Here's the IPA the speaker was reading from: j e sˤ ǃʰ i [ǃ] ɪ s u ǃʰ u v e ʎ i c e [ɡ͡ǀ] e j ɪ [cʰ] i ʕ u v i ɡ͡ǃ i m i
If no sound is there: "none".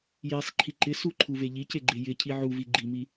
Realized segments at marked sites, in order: ǃ, ɡ͡ǃ, cʰ

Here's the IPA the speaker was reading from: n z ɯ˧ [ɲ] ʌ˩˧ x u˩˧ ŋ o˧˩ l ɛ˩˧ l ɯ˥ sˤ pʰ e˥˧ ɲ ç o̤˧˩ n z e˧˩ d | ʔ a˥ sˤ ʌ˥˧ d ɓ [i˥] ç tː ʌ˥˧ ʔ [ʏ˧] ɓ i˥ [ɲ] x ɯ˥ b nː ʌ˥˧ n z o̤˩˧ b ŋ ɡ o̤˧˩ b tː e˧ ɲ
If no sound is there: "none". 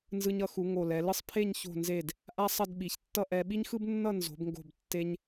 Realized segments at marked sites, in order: ɲ, i˩˧, ɛ˧, ɲ

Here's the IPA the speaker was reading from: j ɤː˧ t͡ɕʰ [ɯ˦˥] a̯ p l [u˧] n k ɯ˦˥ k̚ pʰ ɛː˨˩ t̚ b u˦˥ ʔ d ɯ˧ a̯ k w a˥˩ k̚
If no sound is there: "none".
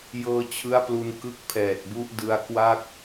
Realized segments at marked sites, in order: ɯ˦˥, u˧

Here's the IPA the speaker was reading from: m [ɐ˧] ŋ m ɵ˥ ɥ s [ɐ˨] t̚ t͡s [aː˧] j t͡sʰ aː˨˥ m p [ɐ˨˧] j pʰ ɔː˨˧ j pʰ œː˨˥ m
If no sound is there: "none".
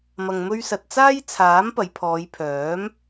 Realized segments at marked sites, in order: ɐ˧, ɐ˧, aː˥, ɐ˨˧

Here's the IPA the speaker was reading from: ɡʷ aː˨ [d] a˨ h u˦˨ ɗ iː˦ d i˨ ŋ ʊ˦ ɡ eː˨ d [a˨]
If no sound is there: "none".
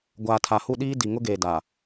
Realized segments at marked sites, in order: tʰ, a˨

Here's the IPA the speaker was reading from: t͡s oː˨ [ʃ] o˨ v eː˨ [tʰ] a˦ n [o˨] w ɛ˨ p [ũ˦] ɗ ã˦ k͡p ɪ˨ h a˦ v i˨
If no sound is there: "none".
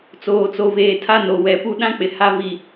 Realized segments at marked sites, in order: t͡s, tʰ, o˨, u˦

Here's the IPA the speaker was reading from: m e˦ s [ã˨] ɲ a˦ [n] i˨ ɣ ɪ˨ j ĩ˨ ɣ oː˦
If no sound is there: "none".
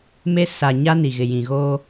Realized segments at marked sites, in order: a˨, n

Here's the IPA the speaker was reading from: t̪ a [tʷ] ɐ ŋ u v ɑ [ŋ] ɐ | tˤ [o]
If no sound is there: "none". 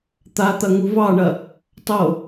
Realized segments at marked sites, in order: t̪, ɳ, o

